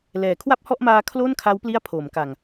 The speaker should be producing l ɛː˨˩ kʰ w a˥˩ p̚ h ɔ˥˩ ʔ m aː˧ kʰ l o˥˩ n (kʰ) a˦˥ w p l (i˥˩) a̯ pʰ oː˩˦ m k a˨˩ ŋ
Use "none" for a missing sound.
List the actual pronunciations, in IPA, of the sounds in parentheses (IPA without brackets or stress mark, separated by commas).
kʰ, i˥˩